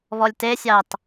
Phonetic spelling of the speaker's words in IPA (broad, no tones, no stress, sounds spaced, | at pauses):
β ɔ lʲ t e sʲ ɑ t